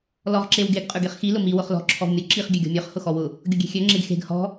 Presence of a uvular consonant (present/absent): present